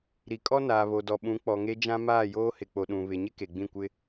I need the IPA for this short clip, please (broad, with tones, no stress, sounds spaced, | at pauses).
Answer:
ɾ i˨ kʼ ɔ˦ n aː˨ β o˨ d ɔ˨ ɓ ũ˨˦ k͡p ɔ˨ ŋ e˦ d͡ʒ ã˦ m aː˦˨ j oː˦ h ɪ˨ k͡p o˨ ɗ ũ˨ β ɪ˨ ɲ ɪ˦ k e˨ ɡ͡b ĩ˦˨ kʷ ɪ˦